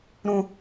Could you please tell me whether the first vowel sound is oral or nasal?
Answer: nasal